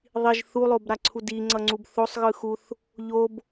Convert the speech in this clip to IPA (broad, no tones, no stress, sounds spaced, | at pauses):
ðˤ i ʒ θ u lˠ o b ɾ a ǀʰ u d i ŋ͡ǀ ʌ ŋ͡ǀ u b θ o sˤ ɣ ɯ x u θ | ʎ o b